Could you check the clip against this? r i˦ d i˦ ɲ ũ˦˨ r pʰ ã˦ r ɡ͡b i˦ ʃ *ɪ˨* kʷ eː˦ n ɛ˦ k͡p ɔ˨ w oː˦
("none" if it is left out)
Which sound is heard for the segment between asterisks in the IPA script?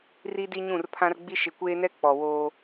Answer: ɪ˨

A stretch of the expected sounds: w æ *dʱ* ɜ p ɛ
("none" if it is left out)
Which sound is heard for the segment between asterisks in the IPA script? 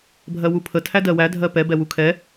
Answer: dʱ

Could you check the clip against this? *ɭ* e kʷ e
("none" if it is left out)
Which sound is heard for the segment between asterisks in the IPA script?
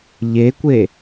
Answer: ʎ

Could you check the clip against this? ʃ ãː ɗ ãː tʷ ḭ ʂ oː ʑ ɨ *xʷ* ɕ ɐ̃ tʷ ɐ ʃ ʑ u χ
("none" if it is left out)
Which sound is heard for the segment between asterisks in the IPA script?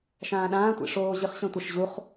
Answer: χ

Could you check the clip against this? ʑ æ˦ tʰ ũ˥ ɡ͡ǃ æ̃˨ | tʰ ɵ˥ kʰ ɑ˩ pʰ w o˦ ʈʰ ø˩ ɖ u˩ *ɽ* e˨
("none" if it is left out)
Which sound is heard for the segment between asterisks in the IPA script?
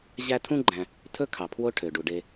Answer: ɖ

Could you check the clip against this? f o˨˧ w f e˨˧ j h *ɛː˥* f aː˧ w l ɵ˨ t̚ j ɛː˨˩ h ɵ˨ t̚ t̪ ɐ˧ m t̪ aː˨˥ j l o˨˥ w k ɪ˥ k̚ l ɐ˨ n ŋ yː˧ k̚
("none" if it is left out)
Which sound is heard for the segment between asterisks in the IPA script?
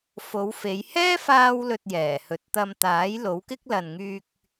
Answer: ɛː˥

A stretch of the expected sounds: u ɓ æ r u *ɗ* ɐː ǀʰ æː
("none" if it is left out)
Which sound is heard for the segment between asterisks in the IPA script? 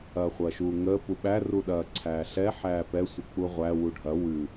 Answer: ɗ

